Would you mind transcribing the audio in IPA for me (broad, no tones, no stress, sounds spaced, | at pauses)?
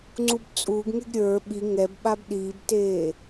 ŋ͡ǀ u b t͡sʼ uː ɡ ŋ e ɡ ɾʲ ə˞ ɓ i ŋ ɛ b ɓ a b ɗ iː b t eː